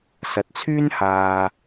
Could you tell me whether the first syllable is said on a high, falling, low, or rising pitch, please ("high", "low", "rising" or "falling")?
low